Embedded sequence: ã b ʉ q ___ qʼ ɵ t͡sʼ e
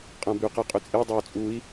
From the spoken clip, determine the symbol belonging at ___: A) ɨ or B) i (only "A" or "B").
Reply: A